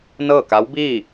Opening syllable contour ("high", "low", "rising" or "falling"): falling